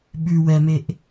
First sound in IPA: ɓ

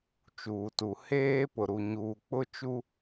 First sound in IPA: t͡ʃ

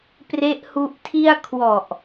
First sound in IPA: p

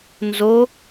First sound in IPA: n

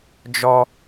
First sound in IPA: d͡ʒ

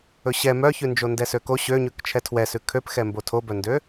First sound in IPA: ɵ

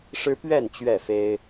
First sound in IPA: ʂ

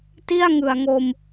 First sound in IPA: t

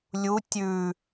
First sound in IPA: lʲ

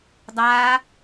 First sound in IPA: dˤ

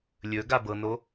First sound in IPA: lʲ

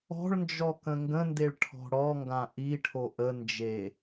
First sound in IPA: ɔ̤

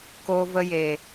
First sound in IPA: k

